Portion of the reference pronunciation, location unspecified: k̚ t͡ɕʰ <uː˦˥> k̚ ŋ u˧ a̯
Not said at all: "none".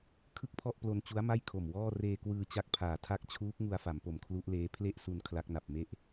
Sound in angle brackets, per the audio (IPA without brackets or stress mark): uː˦˥